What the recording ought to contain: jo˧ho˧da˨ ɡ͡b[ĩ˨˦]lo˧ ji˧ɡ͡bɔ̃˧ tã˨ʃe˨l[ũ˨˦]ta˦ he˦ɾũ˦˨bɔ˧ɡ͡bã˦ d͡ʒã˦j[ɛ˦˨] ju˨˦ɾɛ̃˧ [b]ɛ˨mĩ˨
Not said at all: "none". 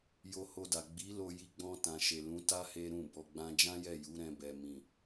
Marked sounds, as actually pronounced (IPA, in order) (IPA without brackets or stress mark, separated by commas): i˨˦, ũ˨˦, ɛ˦˨, b